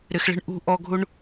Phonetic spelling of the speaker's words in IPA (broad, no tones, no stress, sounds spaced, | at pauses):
ɾ ɪ x ɭ e̤ ɳ ʔ ṳ ʔ ɔ ɡʱ u ɳ